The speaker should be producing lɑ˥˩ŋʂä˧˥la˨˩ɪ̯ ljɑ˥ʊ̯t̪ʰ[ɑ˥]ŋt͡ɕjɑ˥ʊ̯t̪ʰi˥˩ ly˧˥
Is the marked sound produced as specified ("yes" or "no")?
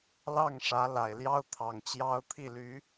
no